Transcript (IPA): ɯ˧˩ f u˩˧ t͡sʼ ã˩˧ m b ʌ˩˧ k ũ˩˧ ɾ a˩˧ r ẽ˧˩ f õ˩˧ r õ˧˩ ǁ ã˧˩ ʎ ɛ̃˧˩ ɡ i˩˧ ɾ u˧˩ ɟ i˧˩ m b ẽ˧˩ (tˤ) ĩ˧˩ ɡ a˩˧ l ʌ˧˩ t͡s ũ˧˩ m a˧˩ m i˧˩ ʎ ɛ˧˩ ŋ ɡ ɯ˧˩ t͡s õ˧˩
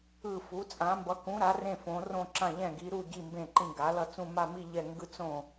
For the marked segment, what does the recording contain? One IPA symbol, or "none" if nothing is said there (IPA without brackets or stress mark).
ǃ